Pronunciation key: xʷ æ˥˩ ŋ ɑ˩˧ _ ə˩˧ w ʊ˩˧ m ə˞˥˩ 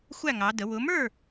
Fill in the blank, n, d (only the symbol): d